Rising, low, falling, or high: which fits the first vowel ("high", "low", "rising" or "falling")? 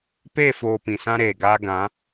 falling